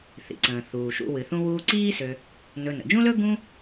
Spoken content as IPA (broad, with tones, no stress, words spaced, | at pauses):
θḭ˩ǀə̃ː˩ θuː˩ʃṵ˨ wɨ˩θũ˦wuː˦ǀiː˥ sø˨ | nɵ˨ nə̰˩d͡ʒũ˥lɵ˥ ɡũ˦